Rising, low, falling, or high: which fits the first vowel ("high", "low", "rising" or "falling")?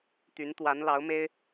rising